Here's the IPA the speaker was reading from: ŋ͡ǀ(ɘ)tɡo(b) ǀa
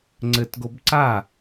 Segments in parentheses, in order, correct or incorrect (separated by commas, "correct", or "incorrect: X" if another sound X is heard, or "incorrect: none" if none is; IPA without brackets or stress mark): correct, correct